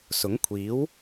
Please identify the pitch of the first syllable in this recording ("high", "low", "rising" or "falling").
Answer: rising